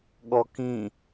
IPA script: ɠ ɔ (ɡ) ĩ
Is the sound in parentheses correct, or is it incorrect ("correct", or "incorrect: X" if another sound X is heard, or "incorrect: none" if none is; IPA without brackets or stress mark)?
incorrect: k